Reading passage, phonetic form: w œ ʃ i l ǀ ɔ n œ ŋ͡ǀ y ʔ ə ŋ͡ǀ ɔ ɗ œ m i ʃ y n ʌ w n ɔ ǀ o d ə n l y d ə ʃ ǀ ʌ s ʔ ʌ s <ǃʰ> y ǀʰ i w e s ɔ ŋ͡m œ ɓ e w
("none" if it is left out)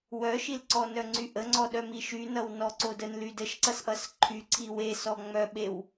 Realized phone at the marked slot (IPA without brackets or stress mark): ǃʰ